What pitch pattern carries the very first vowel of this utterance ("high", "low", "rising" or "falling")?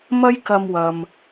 high